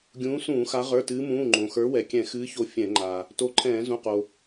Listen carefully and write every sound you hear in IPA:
ɡʲ ũː˨˦ s ũː˧˩˧ x a˨˦ ʁ ə˞˩˧˩ t ɨː˨˦ m ũː˩˧˩ ŋ͡ǃ õ˩ x ə˞˨˦ w ɛ˩ kʲ ɛ̃˧˩˧ x ɨː˨˦ ç o˨˦ fʲ ɛ̃˧˩˧ ŋ͡ǃ a˩ | t o˨˦ ǃʰ ɛ̃ː˧˩˧ z ũ˩˧˩ q o˩

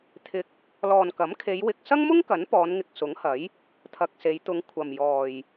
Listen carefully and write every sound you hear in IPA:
t̪ʰ ɪ˧ k̚ | l ɔː˨ n k ɐ˨˥ m kʰ e˨˧ j w ɪ˨ k̚ s ɐ˥ ŋ m ʊ˥ ŋ k ɐ˨˥ n p ɔː˨˧ n ŋ ɪ˨ k̚ s ʊ˨˥ ŋ h ɐ˨˥ j | t̪ʰ ɐ˨ k̚ s e˨˧ j t̪ ʊ˨˧ ŋ kʷʰ ɐ˨ m j ɔː˨ j

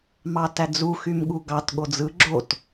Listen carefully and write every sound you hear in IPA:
m ɑ t æ d͡z u x y m ɠ u ɡ ɑ t ɠ o d͡z ɯ ɡ͡ǁ o t

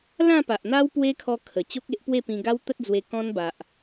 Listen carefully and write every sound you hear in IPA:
l ã˥˧ p a˨ ʔ n̪ a˦ w p w e˦ kʰ ɔ˧ kʰ ə˨˩ t͡ɕ o˦ k̚ e˦ ʔ p w e˥˧ p ĩ˧ ɡ a˦ w t̪ ə˦ t̚ d͡z w e˧ k ɔ̃˦ n b a˨ ʔ

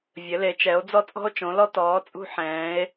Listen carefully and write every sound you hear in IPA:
vʲ ɘ˨˦ l e˨˦ t͡ʃ ɛ˨˦ o̯ d͡z ɔ˦ t͡sʼ ɔ̤˦ o̯ t͡ʃ õ˨˦ l ɔ˦ t ɔː˨˦ t͡sʼ ṳ˦ ħ ɛ̃ː˨˦ e̯

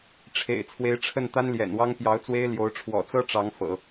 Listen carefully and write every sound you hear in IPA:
ʈ͡ʂʰ ḛ˨˩ ɪ̯ t͡sʰ w e˧˥ ɪ̯ ʈ͡ʂʰ ə˥˩ n t̪ a˥ n l j ɛ̰˨˩ n w ɑ˥ ŋ p j ɑ˧˥ ʊ̯ t͡s w e˥ ɪ̯ l j o˧˥ ʊ̯ ʈ͡ʂʰ w ɔ̰˨˩ t͡s ɤ˥ ʈ͡ʂ ɑ˧˥ ŋ f ɤ̰˨˩˦

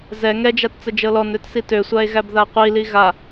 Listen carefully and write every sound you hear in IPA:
z ɛ ŋ ɛ d͡ʒ a t t͡s ə d͡ʒ ɤ l ɔ n ø t s i t ø sʷ a e̯ ɣ æ b ð a qʷ i l i ɣ a

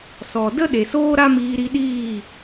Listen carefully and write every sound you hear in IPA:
s ɔ˨ d ə˦ ɗ e˨ s oː˦ ɾ a˦ m iː˧ ɾ i˧ ɗ iː˦˨

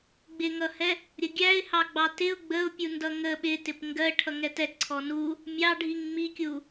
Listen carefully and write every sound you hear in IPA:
ɡ͡b ɪ ŋ ʌ h ɛ | ɾʲ ə ɡʲ æ ɪ̯ h ɑ ɡ͡b ɑ t ɪ ʊ̯ ɡ͡b ə ʊ̯ pʲ u n d ʌ ŋ ə ɓ ɪ t ɪ p ŋ ɡ ɜ ʈʰ ʌ ŋ ɛ t ɛ ǀʰ ɔ n u | mʲ ɑ ɖʱ i ŋ ŋ͡m i kʲ u

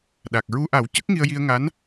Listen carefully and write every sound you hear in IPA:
ɗ a˨˩ k̚ ɹ u˧ ʔ a˨˩˦ w c ə˦˥ k̚ ŋ i˧ ə̯ j i˧ ə̯ ŋ a˧˥ n

